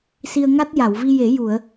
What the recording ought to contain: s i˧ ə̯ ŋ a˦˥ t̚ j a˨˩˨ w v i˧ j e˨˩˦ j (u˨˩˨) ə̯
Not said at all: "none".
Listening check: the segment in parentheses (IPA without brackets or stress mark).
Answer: u˨˩˨